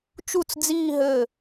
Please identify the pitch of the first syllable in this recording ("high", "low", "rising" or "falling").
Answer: falling